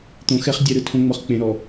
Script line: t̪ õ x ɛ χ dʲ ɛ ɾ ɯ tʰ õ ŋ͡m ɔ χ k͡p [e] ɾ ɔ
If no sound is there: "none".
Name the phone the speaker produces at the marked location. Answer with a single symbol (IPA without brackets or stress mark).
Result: ẽ